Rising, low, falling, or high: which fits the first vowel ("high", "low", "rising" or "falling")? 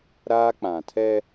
high